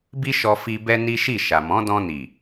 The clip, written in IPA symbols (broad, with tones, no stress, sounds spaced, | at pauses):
b i˦ ʃ ɔ˧ f i˧ b ɛ˦ n i˦ ʃ i˦˨ ʃ a˨ m ɔ̃˨˦ d ɔ̃˧ n i˨